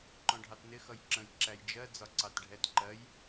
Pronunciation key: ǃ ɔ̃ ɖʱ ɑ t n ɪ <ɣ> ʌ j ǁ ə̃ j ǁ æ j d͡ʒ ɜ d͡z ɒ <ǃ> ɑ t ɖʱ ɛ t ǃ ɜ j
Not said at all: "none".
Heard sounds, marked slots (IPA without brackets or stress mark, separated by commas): x, ǀ